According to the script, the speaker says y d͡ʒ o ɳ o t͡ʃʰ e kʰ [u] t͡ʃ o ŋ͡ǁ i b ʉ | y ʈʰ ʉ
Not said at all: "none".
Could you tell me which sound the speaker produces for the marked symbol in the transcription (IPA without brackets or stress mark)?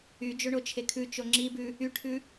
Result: ʉ